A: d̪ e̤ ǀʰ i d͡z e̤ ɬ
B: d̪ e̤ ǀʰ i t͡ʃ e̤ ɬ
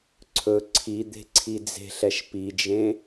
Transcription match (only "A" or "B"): A